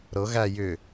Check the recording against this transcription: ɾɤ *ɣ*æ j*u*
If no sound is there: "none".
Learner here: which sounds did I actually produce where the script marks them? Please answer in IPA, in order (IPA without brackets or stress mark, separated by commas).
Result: ɣ, ʏ